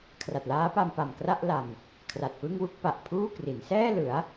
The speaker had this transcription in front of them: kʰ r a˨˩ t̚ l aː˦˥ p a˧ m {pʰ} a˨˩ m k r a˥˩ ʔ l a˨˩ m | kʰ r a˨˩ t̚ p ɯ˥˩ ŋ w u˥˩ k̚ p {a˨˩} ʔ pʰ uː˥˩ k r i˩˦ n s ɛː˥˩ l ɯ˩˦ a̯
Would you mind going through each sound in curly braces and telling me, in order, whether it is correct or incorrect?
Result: incorrect: p, correct

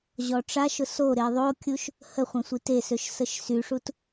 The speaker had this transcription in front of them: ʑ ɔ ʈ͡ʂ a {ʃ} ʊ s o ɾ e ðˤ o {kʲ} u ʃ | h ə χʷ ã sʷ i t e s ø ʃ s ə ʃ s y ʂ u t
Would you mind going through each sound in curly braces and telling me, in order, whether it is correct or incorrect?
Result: correct, correct

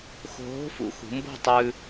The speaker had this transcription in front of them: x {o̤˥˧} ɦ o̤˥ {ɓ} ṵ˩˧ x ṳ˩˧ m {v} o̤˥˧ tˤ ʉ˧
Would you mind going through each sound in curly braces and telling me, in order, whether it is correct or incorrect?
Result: incorrect: o̤˧, incorrect: f, incorrect: b

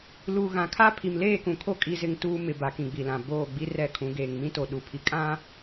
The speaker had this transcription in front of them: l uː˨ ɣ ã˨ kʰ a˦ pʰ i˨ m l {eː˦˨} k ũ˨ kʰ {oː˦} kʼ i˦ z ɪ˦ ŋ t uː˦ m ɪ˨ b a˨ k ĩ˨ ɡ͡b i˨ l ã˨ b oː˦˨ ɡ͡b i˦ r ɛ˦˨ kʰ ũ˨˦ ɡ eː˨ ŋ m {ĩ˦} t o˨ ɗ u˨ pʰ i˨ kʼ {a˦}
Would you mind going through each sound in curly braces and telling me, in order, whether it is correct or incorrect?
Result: correct, incorrect: o˦, correct, incorrect: ã˦

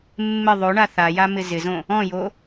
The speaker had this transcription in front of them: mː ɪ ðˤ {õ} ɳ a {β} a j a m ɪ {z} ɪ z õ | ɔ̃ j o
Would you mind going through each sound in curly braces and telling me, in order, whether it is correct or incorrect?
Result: incorrect: o, incorrect: θ, correct

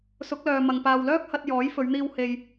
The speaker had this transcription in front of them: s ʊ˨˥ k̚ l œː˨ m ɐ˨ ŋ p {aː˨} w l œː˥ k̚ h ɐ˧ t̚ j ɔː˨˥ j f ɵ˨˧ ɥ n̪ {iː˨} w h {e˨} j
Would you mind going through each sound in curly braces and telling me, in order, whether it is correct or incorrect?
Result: correct, incorrect: iː˧, incorrect: e˧

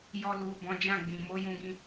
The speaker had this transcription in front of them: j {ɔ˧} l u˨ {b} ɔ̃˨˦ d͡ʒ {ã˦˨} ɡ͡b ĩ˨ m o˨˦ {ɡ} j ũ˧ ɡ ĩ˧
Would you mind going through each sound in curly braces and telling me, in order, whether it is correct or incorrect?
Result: correct, correct, correct, incorrect: none

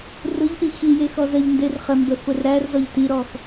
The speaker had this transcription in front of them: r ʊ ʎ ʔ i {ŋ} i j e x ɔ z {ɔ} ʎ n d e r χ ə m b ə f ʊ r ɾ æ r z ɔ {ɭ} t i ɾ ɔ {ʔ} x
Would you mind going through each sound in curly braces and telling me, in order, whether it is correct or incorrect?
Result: incorrect: x, incorrect: ə, incorrect: ʎ, incorrect: none

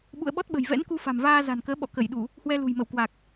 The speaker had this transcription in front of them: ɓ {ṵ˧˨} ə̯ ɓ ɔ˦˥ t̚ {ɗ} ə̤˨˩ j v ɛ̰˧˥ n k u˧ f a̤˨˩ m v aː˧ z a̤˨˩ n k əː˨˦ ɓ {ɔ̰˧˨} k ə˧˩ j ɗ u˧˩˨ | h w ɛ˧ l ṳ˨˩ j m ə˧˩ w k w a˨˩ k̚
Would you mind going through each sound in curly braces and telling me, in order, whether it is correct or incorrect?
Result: correct, incorrect: ɓ, correct

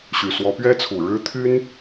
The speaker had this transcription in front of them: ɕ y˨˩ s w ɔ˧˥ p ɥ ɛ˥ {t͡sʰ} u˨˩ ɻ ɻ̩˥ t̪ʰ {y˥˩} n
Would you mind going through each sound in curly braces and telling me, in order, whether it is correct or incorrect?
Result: correct, incorrect: y˥

